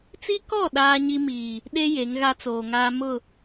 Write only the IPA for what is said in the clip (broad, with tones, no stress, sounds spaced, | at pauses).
t͡s i˦ k ɔ˦˨ ɗ aː˦ ɲ i˦ m iː˨ | ɗ e˦ j e˨˦ ŋ ɣ a˦ t͡s oː˨ ŋ aː˦ m ʊ˦˨